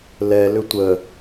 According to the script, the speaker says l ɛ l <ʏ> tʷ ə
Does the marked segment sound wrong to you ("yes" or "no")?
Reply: no